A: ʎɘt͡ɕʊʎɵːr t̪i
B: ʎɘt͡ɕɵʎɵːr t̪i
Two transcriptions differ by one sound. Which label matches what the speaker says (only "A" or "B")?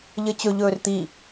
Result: B